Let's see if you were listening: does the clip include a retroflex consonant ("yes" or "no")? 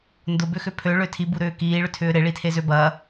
yes